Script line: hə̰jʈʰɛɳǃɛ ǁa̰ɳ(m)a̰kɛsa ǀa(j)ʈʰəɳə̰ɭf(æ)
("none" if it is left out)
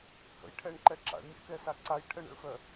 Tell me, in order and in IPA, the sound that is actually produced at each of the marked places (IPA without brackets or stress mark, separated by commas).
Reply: mʲ, j, œ